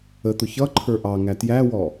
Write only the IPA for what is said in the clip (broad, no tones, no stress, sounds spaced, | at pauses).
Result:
ə t̪ ʊ ç ʌ ǃʰ ə˞ ʔ ɑ ŋ æ t j æ w ɔ